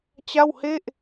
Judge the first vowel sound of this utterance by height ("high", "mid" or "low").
low